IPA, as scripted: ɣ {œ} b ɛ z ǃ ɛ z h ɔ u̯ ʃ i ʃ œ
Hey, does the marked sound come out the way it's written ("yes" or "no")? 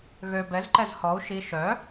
no